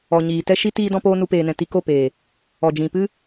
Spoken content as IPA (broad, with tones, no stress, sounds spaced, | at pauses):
ɔ˨ ɲ iː˨ t ɛ˦ ʃ i˦ t iː˦ d ɔ̃˦ p oː˦ n u˧ p eː˨ n ɛ̃˨ t i˧ k o˦˨ p eː˨ | ɔ˨ d͡ʒ ĩ˨ p ɨ˦